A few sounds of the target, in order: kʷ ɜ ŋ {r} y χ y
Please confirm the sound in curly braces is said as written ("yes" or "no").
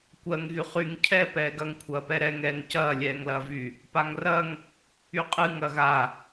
no